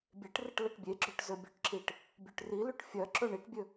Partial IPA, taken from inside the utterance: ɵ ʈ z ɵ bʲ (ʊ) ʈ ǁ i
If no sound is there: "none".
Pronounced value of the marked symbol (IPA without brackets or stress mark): ɵ